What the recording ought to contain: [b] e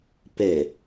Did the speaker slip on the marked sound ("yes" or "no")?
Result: yes